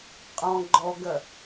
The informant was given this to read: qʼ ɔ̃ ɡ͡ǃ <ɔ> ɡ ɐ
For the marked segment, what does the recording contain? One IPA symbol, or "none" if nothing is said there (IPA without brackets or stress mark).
ɔ